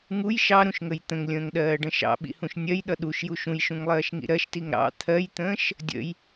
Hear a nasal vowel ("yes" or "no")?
yes